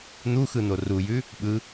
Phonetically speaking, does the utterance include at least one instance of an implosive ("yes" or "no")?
yes